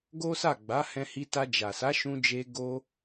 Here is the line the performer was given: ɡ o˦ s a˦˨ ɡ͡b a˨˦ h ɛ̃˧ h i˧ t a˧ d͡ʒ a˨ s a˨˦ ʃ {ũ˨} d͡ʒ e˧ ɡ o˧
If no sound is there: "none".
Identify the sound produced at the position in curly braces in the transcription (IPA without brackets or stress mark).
ũ˧